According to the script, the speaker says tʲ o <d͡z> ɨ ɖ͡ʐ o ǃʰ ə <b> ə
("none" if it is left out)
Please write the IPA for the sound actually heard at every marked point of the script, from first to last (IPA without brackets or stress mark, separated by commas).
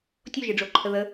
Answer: ʒ, ð